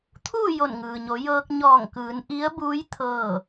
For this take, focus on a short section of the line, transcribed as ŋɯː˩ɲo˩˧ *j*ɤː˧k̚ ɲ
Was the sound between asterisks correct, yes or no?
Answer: yes